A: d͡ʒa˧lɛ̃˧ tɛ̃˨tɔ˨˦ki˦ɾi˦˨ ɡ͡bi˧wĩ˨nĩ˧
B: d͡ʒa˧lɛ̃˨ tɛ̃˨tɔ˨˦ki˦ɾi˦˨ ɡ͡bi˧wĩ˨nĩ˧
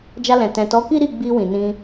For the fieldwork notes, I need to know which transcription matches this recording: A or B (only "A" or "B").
B